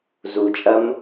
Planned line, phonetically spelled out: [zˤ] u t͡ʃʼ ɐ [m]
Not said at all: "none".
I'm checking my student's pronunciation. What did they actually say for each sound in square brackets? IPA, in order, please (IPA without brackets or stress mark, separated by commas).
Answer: z, m